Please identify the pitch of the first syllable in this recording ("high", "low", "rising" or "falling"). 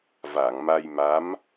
low